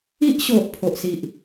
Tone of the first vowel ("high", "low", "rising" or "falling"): high